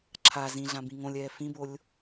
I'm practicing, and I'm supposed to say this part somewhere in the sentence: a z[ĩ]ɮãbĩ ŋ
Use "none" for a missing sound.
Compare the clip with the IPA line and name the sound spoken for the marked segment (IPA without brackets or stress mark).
ĩ